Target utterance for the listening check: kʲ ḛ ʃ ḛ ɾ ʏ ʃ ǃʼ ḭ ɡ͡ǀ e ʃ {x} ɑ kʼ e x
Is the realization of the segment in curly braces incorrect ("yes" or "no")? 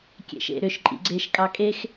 yes